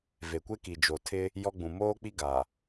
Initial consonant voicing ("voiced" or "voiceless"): voiced